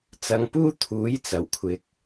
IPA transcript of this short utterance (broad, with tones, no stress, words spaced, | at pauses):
t͡sɐ˧ŋpuː˥ t̪ʰuː˨˥jt͡sɐ˨˩wkʷʰɪ˨k̚